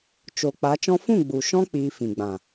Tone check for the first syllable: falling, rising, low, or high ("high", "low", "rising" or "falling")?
low